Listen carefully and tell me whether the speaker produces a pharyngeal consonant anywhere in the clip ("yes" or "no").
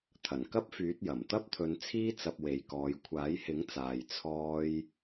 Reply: no